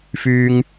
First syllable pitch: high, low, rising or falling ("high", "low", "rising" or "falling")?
high